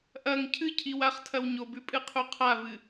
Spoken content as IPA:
ʔ ɐ ŋ cʰ ɨ cʰ i w a χ tʰ ɐ w ɲ o b ʉ pʼ ɨ qʰ u qʰ a v ɨ

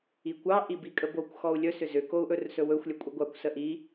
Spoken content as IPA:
i kʷ ɑ ʔ i b i kʼ ə b o kʷ x ɔ u̯ lʲ ɵ s ʏ z ʏ k o u̯ ʔ ɵ r s ɵ w ɵ xʷ lʲ ɵ kʷʼ ə ɡʷ ɑ kʷ s ə ʔ i

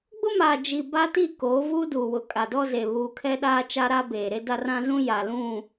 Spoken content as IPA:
ɡ͡b ʊ˦ m aː˨ d͡ʒ i˨ b a˦ t i˦˨ k oː˨˦ v uː˦ d uː˨ w ʊ˨ kʼ a˨ d ɔ˦ z e˨ β uː˨ kʰ ɛ˦ ɗ aː˦ t͡ʃ a˦ ɾ a˦ b eː˨ ɾ e˦ d a˦ r ã˦ z ũ˦ j a˨ l ũ˦˨

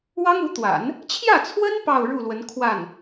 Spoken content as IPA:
w ɑ˥ ŋ u˧˥ t̪ w a̰˨˩˦ n | t͡ɕʰ j ä˥˩ t͡sʰ w ə˥ n p ɑ˥˧ ʊ̯ ɻ u˥˩ l w ə˧˥ n kʰ w a˥˩ n

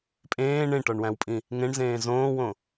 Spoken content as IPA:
pʼ ẽː ɳ ẽ ʈ ɒ ɳ w æ̃ w pʼ ĩ | ŋ ẽ ɳ z ẽː z õː w õ

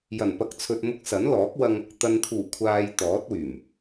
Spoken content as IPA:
j ɐ˨˩ n p ɐ˨˥ k̚ t͡sʰ ɵ˨ t̚ m ʊ˧ k̚ s ɐ˨˥ n l ɔː˨˥ k̚ w ɐ˧ ŋ | t̪ ɐ˨ n t̪ʰ uː˨˩ kʷʰ aː˨ j t̪ ɔː˨˥ t̚ w yː˨˩ m

